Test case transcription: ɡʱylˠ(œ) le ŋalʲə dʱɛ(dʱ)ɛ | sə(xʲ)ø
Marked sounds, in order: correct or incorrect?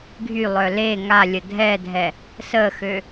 correct, correct, incorrect

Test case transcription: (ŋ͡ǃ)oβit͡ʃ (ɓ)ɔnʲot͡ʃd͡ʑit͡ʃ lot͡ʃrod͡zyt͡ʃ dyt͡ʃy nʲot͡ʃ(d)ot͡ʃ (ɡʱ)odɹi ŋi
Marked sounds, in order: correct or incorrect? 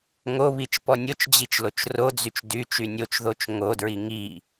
incorrect, incorrect, incorrect, incorrect

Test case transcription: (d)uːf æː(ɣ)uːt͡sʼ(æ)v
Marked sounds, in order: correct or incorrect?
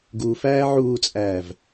incorrect, incorrect, incorrect

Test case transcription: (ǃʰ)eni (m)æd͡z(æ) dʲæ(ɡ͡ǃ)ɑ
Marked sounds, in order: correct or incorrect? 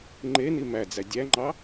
incorrect, correct, correct, incorrect

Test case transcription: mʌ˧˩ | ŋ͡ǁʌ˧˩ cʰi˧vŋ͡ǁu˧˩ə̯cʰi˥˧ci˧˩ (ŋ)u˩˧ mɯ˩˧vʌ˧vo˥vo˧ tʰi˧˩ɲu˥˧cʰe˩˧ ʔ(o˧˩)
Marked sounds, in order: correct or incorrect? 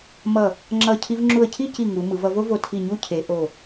correct, correct

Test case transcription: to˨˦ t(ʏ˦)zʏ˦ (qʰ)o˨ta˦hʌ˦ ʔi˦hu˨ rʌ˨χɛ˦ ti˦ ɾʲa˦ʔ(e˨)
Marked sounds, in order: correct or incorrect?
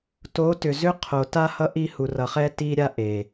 incorrect, correct, correct

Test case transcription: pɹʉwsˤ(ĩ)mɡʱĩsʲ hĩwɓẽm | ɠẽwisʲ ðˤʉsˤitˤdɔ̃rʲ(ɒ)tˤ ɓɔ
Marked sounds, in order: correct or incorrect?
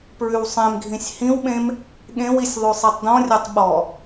incorrect, correct

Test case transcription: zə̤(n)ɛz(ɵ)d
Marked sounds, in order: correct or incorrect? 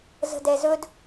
incorrect, correct

